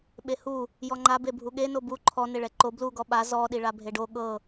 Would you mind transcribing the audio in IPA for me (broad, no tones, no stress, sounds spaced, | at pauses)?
ɓ e h u | j ɔ ŋ͡ǃ a b e bʱ u ɠ e n o b u ǃʰ ɔ n e ɭ ɛ ǃ o b l u ɡ ɔ ɓ a z ɔ ɗ i ɭ a bʱ e ɖ o ɠ ɤ